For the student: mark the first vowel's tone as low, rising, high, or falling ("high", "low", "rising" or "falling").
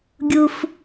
high